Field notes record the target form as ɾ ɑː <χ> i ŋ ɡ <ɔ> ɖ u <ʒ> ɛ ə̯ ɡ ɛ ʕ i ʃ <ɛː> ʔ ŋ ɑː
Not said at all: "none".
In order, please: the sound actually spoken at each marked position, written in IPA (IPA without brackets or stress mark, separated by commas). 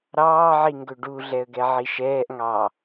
ʕ, ɵ, ɮ, ɛː